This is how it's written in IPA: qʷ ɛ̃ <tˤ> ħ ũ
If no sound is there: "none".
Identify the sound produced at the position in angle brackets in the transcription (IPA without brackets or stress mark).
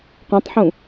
tˤ